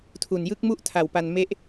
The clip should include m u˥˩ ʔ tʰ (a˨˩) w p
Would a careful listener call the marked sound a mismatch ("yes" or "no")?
no